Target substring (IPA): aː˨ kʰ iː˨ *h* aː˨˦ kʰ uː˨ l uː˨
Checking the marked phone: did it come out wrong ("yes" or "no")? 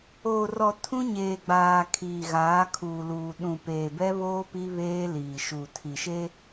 yes